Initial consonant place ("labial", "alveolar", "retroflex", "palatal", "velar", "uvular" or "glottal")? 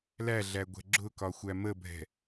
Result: alveolar